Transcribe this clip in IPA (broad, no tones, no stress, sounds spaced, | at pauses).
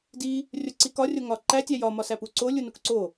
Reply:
d i | rʲ o ǀ i k ɒ rʲ o ŋ ɒ ǃ æ tʲ æ j ɒ m ɒ s æ p u ǀ o lʲ u n u k ǀ o